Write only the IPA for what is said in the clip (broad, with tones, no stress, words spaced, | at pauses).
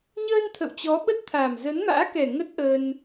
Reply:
ɲəː˧n t̪ʰə̰˧˨wt͡ɕɔ˨˦ɓə˦˥t̚t̪ʰa˨˩m zə˨˦nma̰ː˧˥kɛ˨˩ ŋə˦˥t̚ʔəː˧n